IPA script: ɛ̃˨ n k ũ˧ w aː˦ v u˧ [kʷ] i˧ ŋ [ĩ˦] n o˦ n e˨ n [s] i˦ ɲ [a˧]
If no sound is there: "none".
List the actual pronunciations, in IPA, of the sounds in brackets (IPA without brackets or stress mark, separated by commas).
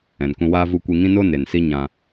kʷ, ĩ˦, s, ã˧